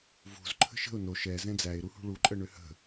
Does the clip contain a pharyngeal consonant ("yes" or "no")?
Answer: no